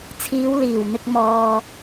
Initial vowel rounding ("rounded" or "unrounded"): unrounded